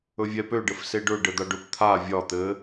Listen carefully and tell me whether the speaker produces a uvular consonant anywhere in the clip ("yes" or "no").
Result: no